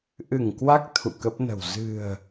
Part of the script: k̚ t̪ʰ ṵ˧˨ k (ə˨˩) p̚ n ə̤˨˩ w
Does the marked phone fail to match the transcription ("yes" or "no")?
yes